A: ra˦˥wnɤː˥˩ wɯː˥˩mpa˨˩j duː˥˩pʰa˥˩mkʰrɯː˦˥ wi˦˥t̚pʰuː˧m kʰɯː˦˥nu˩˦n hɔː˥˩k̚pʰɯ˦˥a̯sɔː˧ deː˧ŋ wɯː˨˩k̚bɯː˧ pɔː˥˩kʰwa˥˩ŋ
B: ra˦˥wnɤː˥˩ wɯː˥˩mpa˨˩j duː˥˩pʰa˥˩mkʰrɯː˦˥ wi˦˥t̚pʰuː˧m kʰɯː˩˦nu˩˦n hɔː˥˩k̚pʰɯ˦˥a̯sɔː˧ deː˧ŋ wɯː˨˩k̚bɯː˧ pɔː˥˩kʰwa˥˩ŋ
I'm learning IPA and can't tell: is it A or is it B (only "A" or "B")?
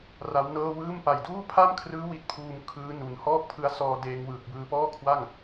A